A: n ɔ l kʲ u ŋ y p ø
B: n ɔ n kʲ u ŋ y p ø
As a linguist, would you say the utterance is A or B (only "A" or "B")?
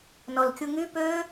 A